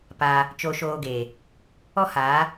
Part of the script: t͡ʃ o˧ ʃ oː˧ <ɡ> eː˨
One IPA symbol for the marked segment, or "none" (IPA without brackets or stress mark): ɡ